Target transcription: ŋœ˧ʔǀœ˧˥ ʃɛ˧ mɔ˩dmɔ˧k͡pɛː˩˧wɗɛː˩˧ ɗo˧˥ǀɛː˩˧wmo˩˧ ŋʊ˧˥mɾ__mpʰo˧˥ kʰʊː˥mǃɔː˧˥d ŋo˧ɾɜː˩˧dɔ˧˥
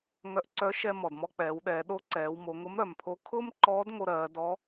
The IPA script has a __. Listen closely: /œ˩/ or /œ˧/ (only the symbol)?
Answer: œ˩